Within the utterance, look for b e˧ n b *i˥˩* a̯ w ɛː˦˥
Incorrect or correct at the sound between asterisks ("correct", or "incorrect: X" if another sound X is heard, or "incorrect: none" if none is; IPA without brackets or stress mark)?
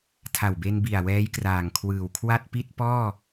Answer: incorrect: i˨˩